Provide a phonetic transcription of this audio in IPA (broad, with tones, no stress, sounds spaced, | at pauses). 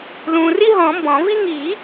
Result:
l ũː˨ r i˥ ɦ ɔ̃˨˩˦ m b ɔ̃˨˩˦ v i˥ ŋ iː˨˩˦